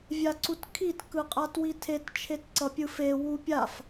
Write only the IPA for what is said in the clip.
vʲ a ǀ u t kʰ i t k ɯ qʼ a t w i tʰ e t t͡ʃʰ e t ǀ ʌ pʲ ɯ f e w u pʲ a f

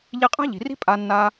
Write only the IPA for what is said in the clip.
ʎ i˧ qʼ a̤˦ ʎ i̤˨ r i̤˦ pʼ a˦ nː a˦

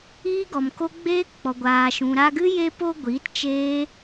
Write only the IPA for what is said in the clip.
iː˦ ɡ ɔ˨ m k o˦ ɡ͡b eː˦ k k͡p ɔ˨ ɡʷ aː˨ ʃ ũ˨ ɾ a˧ ɡ ɨ˦ j e˧ p o˧ ɡʷ iː˨˦ t t͡ʃ eː˦

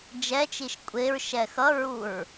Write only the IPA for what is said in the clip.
d͡ʒ ɛ t͡ʃ i ʃ kʷʼ e ɹ ʃ ɛ x ʌ ɹ u ɹ

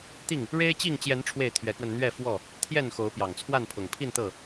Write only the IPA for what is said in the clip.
t̪ i˥˨ ŋ | ɻ e˦ ɪ̯ t͡ɕ i˥˨ ŋ t͡ɕ j ɛ˨˦ n ʈ͡ʂʰ w e˥˨ ɪ̯ t̪ʰ ɥ ɛ˨˦ k w ə˧ n n̪ ɥ ɛ˥˨ f w ɔ˥˨ | t̪ʰ j ɛ˥˨ n x o˨˦ ʊ̯ p j ɑ˨˩ ŋ t͡sʰ w a˥˨ n pʰ ʊ˨˩ ŋ pʰ i˥˨ n t̪ ɤ˥˨

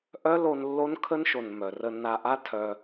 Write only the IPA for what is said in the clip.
ʔ œ˦ l o˧ n lː o˦ n kʰ ə˦ n ʃ o˨ n m œ˨ r ə˧ nː a˧ ʔ a˦ tʰ œ˧

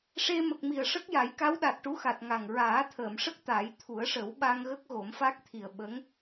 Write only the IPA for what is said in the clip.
ʂ e˧ m ə˨˩ k̚ m i˨˩ ə̯ ʂ ə˦˥ k̚ j a˨˩˦ j k a˧˥ w ɗ a˨˩ t̚ ʈ u˧˥ x a˨˩ t̚ ŋ a˨˩ ŋ ɹ aː˨˩˦ t̪ʰ əː˨˩˨ m ʂ ə˦˥ k̚ t̪ a˨˩˦ j t̪ʰ u˨˩˦ ə̯ ʂ ə˨˩˦ w ɓ a˧ ŋ ɣ ə˦˥ k̚ ɣ o˨˩˦ m f a˦˥ k̚ t̪ʰ i˨˩ ə̯ ɓ ə˧˥ ŋ

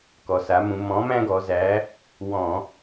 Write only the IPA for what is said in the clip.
k ɔ˩ s a˩˧ m ũ˩˧ m ɔ̃˨˥ m æ̃˥ ɡ ɔ˩˧ z æ˨˥ | w ɔ̃˧˩˧

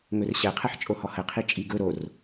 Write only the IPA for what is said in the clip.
ŋ ɵ r ɕ ɛ qʰ ɛ ħ t͡ʃʼ o h ɔ h ə qʰ i t͡ʃʼ i ɡ ɵ ɾ o r

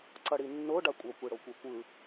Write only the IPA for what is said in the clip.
ǀ ʌ ɽ i nː o ɖ a kʷʼ ʌ kʷ i ɽ o kʷ e kʷ ɯ

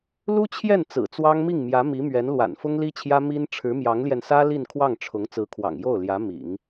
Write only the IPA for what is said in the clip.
l u˥ t͡ɕʰ j ɛ˥˩ n t͡s ɹ̩˨˩ t͡s w ɑ˥ ŋ m i˥˩ ŋ m j ä˧˥ m i˧˥ m ɥ ɛ˧˥ n l w a̰˨˩ n f ʊ˥ ŋ l i˥ t͡ɕʰ j ä˥ m i˥ n ʈ͡ʂʰ ɻ̩˧˥ m j ɑ˧˥ ŋ l j ɛ˧ n s ä˥ l i˥˧ n kʰ w ɑ˥˩ ŋ ʈ͡ʂʰ ʊ˧˥ ŋ t͡s ɹ̩˧˥ kʰ w ɑ̰˨˩ ŋ j o˥˩ ʊ̯ l j ä˧˥ m ḭ˨˩˦ ŋ

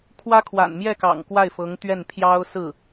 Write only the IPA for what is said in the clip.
kʰ w ä˥ kʰ w a̰˨˩ n m j ɛ˥˩ k ɑ̰˨˩ ŋ k w a˥˩ ɪ̯ f ɤ˧˥ ŋ t̪ ɥ ɛ˥˩ n pʰ j ɑ˥ ʊ̯ s ɹ̩˥˩

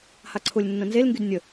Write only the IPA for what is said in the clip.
h a ǀʰ ʊ lʲ nː ə̃ n z e l ŋ ɡ y d nʲ ə

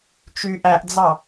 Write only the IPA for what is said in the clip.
t͡ʃ y ʔ æ ʔ d͡z ɑ

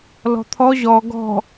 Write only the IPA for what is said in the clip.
l ɔ̤ t̪ʰ ɔ ʑ ɔ ɡ ɔ̤

